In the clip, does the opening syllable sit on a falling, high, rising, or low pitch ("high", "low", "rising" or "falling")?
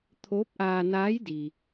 rising